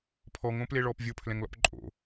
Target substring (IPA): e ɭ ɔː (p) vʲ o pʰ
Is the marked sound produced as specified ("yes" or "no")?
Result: yes